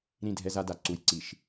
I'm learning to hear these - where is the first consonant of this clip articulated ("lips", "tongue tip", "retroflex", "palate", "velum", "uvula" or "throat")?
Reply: tongue tip